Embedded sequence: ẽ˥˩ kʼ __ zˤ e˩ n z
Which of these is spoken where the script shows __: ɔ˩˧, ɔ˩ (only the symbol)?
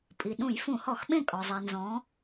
ɔ˩